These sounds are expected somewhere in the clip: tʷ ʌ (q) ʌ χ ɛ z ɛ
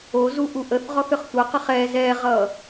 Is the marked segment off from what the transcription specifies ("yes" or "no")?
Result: no